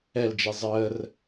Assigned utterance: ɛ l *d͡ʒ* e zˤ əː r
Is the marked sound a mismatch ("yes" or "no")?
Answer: no